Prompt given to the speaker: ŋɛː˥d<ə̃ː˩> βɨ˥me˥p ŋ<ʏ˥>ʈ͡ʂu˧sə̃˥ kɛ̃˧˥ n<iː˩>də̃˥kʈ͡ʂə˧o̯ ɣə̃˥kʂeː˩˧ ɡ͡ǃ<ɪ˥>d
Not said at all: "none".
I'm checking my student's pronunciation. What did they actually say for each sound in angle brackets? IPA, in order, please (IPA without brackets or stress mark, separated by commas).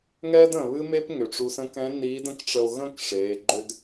ə̃ː˩, ʏ˩, iː˧˥, ʏ˥